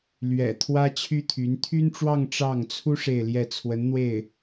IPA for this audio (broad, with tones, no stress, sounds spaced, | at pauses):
l ɥ ɛ̰˨˩ t̪ʰ w ä˥ t͡ɕʰ y˥ t̪ʰ y˧˥ n t̪ʰ y˥ n ʈ͡ʂ w ɑ˥˧ ŋ ʈ͡ʂ ɑ˥˩ ŋ t͡sʰ u˥ ʂ e˥˧ ɪ̯ l j ɛ˥˩ t͡sʰ w ə˧˥ n n̪ w e˥˩ ɪ̯